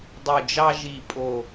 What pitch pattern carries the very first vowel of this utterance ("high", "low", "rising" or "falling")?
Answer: low